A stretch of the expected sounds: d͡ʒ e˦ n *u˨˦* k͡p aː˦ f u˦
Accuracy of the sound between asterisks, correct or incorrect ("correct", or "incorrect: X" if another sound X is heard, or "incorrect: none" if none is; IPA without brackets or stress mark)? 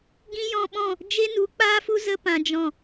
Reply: correct